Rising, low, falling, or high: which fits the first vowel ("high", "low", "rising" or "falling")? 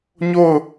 falling